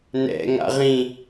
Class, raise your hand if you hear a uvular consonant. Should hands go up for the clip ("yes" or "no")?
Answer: yes